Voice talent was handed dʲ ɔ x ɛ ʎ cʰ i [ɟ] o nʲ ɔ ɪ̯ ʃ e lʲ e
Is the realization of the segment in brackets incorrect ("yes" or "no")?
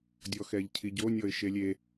no